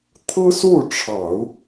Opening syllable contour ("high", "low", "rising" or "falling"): high